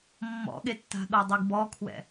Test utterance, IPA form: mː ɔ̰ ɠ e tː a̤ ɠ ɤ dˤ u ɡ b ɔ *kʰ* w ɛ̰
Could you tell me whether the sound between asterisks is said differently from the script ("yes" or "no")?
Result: no